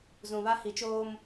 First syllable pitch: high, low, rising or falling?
low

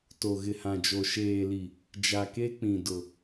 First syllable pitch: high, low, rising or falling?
low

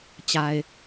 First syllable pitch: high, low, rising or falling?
low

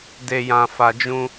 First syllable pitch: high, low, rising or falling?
low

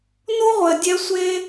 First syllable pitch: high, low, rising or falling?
high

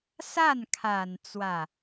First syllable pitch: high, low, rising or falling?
falling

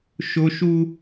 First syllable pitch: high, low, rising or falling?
high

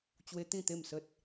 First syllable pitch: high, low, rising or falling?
high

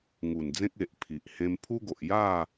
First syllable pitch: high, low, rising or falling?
low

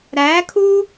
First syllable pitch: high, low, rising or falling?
rising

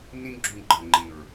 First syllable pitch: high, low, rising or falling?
high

